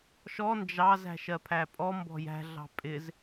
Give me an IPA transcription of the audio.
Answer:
ʃ ɔ n d͡ʒ ɑ z æ̤ ʃ ɜ pʰ æ pʼ ɔ m b ɔ̤ j æ̤ ɮ ɑ̤ pʼ ɪ z

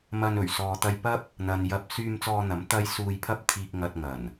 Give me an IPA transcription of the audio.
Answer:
m ɐ˧ n ɵ˨˩ ɥ s ɔː˨ t̪ ɐ˧ j p ɐ˥ p̚ | n̪ ɐ˨ n j ɐ˧ p̚ s yː˧ m t͡s ɔː˧ n̪ ɐ˨˥ m t̪ ɐ˥ j s uː˧ j pʰ ɐ˥ p̚ t̪ʰ iː˧ k̚ ŋ ɐ˧ t̚ ŋ ɐ˨˩ n

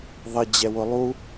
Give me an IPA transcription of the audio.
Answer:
ðˤ ɪ d͡ʑ ɛ w ʊ lˠ u

